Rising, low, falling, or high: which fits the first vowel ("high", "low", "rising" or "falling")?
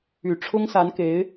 low